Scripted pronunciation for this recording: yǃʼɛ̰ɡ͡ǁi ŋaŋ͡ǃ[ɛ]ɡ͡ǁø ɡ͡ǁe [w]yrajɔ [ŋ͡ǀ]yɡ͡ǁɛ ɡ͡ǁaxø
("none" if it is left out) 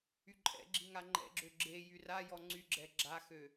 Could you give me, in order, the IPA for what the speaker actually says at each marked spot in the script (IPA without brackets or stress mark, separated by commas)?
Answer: ɛ̰, j, ŋ͡ǀ